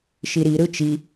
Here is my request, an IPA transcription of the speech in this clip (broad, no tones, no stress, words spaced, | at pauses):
ʃiɾi ɾɯt͡ʃi